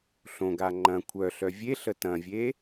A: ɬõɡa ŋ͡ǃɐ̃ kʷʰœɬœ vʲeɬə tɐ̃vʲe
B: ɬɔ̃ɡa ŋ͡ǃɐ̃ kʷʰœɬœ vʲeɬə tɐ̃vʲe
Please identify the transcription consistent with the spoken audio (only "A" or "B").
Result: A